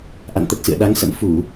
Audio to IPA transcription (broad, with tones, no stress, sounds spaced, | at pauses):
ʔ a̰˧˨ n t̪ ə˨˩ t̚ s ɨ̰˧˨ ə̯ ɗ a˨˦ ŋ s ə̰˧˥ m f u˧˩˨